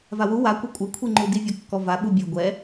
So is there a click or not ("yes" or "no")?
yes